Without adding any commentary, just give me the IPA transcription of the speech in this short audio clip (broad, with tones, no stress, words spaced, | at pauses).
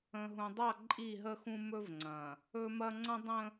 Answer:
ə̃˨ɦũ˨dˤa˦˨ ǃʼi˦˨ɦə˦xũ˦ mɵ˦vŋ͡ǀɐ̃˨ | ɵ˦mɐ˦ ŋ͡ǀɐ̃˦dˤə̃˦